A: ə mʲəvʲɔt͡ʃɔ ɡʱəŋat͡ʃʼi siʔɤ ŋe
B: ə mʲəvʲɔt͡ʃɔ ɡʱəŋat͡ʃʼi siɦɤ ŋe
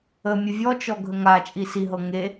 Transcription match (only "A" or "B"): B